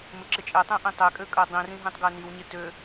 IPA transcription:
m ɪ ǁ ɪ t͡ʃʼ ɛ tˤ ɛ̃ ʔ ĩ tˤ ɛ kʼ ø kʼ ɜ dˤ ĩ r ĩ ɦ ĩ tˤ ɡ ɜ n i w ɲ ɪ t ø

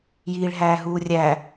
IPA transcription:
j iː ɭ ɦ æː ɦ uː rʲ æ

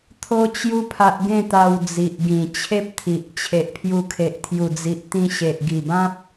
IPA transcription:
t̪ʰ o˦ t͡ɕ j u˦ pʰ a˦ ʔ ɡ ẽ˥˧ t̪ a˧ w d͡z i˨ ʔ ɡ ĩ˨˩ t͡ɕʰ e˦ p̚ t̪ʰ i˨ ʔ t͡ɕʰ e˨ ʔ pʰ j u˧ kʰ e˨ ʔ t̪ʰ j u˨˩ d͡z i˨ ʔ t̪ ĩ˧ ɕ e˨ ʔ ɡ i˨˩ b ã˦ p̚

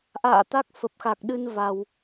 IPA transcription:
ʔ a̰ː˧˨ t̪ a˦˥ k̚ f ə˨˩ p̚ x a˨˩ k̚ ɗ ɨ˧ n v a˧ w

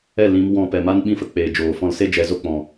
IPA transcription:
ɛ˦˨ l ĩ˧ m w ɔ̃˧ p ɛ˨ m a˦ n ɓ ĩ˦ f ə˨ k͡p eː˨ d͡ʒ oː˨ f ɔ̃˧ l s e˦ d͡ʒ ɛ˧ z o˦ k͡p ɔ̃˨

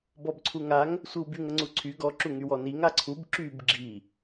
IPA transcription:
b ɔ b ǀʰ u ŋ a ŋ | sʷ i w b y ŋ ə ŋ͡ǀ u ǀʰ y ɡ ɔ ǁ u ŋ y w ɔ n i ŋ a ǀʰ u b ǁ y b ɡ͡ǁ i

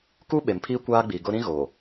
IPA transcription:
k u˦ ɓ e˨ m pʰ iː˦ kʷ aː˦ ɡ͡b i˨ ɡ ʊ˦ ɾ ĩ˦ ɣ oː˨

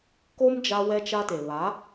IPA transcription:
k o˦ m d͡ʒ a˦ w ɛ˦ t͡ʃ a˦ t e˨ β a˨˦

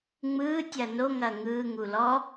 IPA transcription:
ŋ͡m ɯː tʲ ɐː n o ŋ ɐː ŋ ɯː ŋ u l ɔ

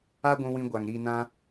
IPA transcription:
a˦ ɡʷ ũ˧ w ĩ˧ ɡʷ a˨ ŋ ɾ i˧ n ã˦

